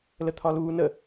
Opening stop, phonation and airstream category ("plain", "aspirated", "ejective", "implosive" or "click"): aspirated